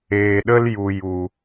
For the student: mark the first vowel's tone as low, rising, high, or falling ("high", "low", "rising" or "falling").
low